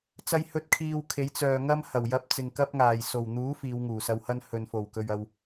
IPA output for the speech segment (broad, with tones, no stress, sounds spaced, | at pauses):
t͡s ɐ˧ j h ɵ˧ t̚ kʰ iː˧ w kʰ e˨˥ j t͡s œː˨ ŋ ɐ˥ m h ɐ˨˩ w j ɐ˧ p̚ t͡s ɪ˨ ŋ k ɐ˥ p̚ ŋ aː˨˩ j s o˨˩ w n̪ uː˨˥ f iː˨˧ w ŋ uː˨˩ s ɐ˧ w h ɐ˥ n h ɵ˨ n f o˨˩ w k ɵ˨ ɥ ɐ˧ w